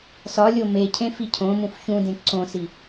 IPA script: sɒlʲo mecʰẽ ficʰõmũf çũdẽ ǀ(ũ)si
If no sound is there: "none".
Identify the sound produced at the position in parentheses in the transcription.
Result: õ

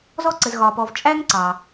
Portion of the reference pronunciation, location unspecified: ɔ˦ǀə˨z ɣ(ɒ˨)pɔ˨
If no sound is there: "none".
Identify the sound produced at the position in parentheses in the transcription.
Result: ɒ˨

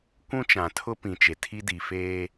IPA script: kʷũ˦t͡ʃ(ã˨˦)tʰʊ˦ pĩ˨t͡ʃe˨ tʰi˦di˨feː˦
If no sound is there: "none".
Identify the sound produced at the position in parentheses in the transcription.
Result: ã˨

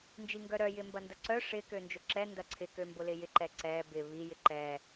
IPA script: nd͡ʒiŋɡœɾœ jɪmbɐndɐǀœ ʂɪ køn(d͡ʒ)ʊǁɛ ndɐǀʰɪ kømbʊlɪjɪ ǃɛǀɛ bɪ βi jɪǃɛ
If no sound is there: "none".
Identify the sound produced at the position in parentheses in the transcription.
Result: d͡ʒ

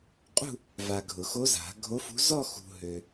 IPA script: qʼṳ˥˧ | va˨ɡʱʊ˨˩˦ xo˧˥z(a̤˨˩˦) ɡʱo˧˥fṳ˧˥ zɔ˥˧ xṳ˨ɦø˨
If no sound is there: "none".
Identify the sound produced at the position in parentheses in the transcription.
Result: a̤˨˩˦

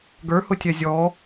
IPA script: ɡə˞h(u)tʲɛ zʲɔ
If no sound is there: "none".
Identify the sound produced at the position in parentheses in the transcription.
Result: ʊ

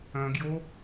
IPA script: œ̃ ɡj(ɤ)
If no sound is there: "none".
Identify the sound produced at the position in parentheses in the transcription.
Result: o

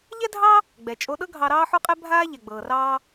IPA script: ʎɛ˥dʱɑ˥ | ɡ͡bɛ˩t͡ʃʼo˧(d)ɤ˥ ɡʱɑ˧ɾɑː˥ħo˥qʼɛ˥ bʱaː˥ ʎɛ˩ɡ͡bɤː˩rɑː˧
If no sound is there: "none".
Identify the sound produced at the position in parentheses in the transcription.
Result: ɗ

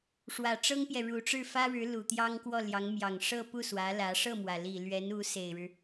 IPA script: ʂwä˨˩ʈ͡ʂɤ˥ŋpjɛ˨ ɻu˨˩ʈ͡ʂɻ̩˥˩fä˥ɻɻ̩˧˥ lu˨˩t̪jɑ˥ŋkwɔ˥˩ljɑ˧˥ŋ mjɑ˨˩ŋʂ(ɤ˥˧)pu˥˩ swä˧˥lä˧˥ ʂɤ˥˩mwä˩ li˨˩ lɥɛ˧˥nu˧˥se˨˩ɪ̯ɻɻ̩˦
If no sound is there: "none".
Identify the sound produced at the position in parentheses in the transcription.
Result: ɤ˥˧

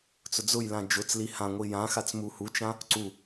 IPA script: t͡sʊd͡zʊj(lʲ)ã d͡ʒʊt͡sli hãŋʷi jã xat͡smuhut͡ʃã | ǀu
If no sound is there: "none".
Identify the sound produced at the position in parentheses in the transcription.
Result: l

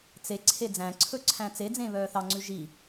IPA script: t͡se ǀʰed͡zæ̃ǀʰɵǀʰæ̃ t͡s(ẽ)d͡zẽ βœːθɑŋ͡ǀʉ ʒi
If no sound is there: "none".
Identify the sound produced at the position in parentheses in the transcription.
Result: e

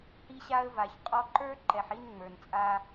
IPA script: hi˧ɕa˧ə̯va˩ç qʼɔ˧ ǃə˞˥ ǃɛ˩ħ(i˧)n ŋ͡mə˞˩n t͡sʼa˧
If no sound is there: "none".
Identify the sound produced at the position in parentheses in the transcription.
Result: i˧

